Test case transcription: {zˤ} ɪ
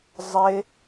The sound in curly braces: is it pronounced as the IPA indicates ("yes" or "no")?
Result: yes